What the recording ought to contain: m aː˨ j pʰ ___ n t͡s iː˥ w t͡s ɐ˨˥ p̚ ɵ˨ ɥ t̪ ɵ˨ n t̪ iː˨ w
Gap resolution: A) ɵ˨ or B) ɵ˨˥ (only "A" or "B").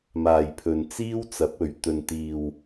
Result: A